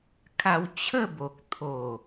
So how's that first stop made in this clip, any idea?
aspirated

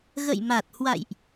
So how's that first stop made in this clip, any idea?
plain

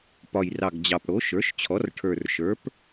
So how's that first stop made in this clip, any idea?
plain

